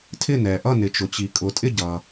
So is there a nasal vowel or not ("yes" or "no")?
no